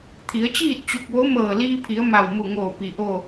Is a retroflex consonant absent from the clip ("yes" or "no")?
yes